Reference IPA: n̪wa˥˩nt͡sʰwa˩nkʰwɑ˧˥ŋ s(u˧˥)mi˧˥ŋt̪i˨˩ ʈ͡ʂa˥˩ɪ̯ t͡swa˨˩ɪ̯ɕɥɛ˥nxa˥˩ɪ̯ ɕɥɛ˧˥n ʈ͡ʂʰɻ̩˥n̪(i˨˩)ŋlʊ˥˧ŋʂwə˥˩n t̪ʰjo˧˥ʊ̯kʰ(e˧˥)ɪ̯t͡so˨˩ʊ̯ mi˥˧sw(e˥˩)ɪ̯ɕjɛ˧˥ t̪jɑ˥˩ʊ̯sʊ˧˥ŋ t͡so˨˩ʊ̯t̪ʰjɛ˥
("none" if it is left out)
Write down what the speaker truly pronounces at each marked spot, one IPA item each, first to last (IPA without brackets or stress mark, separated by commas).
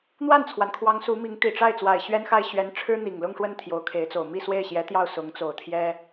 u˧˥, i˨˩, e˧˥, e˥˩